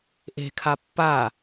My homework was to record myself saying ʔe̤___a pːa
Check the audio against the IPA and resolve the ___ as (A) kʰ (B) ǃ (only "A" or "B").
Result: A